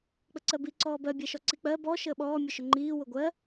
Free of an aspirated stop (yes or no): yes